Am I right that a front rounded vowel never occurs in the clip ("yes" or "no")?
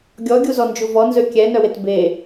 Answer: no